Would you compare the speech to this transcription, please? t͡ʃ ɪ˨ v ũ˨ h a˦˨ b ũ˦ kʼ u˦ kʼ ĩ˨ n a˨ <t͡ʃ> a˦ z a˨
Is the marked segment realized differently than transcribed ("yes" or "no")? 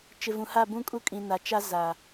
no